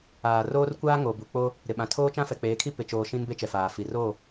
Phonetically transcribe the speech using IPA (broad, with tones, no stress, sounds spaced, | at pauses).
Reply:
aː˨ r oː˦ r kʷ aː˦ ŋ o˨ b u˨ k͡p o˦ | ɾ ɪ˨ ɓ ã˨ tʰ oː˦ t͡ʃ ã˦ f ɛ˨ k͡p eː˨˦ kʰ i˦ p ɪ˨ t͡ʃ oː˨ ʃ ĩ˦ n b e˦ t͡ʃ ɛ˨ f aː˨ f i˨ r oː˦˨